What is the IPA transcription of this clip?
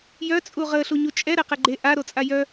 j œ t͡sʼ u ʁ ə ɬ u ɲ u t͡ʃʼ ɛ ɾ ɛ q ɛ ɡ͡ǃ e ʔ a ɾ o t͡sʼ a j œ

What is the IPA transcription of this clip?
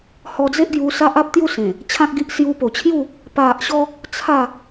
h ɔ˧ d͡z e˦ ʔ ɡ j u˧ s a˦ ʔ a˦ p̚ t̪ j u˥˧ s ẽ˨˩ | t͡ɕʰ ã˦ k̚ ɡ i˦ ʔ s j u˧ p o˨˩ t͡ɕʰ j u˥˧ | p a˨ ʔ ɕ ɔ˧ | t͡sʰ a˥˧

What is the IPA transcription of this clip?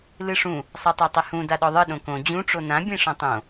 l ɨ ʂ ũ | sˤ a tˤ a tˤ e h ũ d a ɗ ɔ ðˤ ɨ ɗ õ k õ d͡ʑ ũ ʈ͡ʂ o n ã bʲ ẽ ʂ ɔ̃ tˤ õ

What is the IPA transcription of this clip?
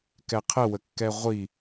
k ɛ qʰ ə w ə kː ɛ ʁʷ i

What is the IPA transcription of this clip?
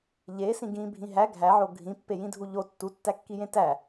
ʎ e s ĩ ɡ ĩ bʱ ĩ ɦ æ ɡʱ æ ʕ o ɡʱ ĩ pː e j ĩ dʱ u ʎ o tː u tː æ kː i j ẽ t æ

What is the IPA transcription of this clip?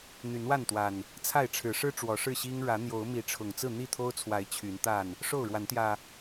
n̪ y˨˦ n w a˥˨ n t̪ w a˨˩ n | t͡sʰ a˥˨ ɪ̯ ʈ͡ʂʰ ɻ̩˨˦ ʂ ɻ̩˦ ʈ͡ʂ w ɔ˨˦ ʂ ɻ̩˥˨ ɕ i˦ ŋ ɻ ä˨˦ n̪ j o˨˦ ʊ̯ m i˨˦ ʈ͡ʂʰ ʊ˨˩ ŋ t͡s ɹ̩˥˨ n̪ i˥˨ t̪ʰ o˦ ʊ̯ t͡sʰ w a˨˦ ɪ̯ t͡ɕʰ y˨˦ n t̪ a˥˨ n | ʂ o˥˨ ʊ̯ ɻ w a˨˦ n t̪ j ä˨˩

